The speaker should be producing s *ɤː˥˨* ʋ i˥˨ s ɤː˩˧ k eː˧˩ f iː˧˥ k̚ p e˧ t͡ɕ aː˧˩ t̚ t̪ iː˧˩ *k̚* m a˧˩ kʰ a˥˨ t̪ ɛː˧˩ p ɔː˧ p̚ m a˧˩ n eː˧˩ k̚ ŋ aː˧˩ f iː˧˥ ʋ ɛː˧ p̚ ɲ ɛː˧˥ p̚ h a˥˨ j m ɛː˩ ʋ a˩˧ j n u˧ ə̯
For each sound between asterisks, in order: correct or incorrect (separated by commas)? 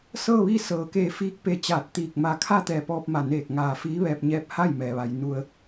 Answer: correct, correct